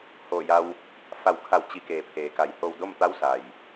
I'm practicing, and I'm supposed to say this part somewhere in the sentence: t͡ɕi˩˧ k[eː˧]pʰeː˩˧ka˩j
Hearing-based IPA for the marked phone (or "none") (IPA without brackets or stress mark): eː˩